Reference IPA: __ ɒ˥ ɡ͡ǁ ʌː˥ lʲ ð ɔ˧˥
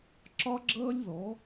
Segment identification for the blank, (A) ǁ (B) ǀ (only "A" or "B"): A